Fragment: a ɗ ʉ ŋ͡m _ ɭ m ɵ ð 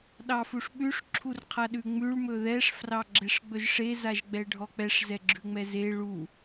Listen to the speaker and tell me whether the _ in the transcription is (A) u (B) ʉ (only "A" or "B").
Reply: B